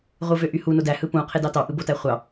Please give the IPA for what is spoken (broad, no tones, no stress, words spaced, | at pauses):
ʁʷɯvøʔyhu nodæ hɯpũ qʰedɑtɑʔɯ botæχʷɑ